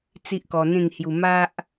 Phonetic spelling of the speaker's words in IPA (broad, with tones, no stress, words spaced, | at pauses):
t͡si˦ʔkɔ˧n̪ẽ˥˧ŋhju˧ ma˦ʔ